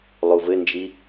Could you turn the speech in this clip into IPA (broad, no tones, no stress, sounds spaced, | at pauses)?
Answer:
lˠ u v ɘ n d͡ʒ i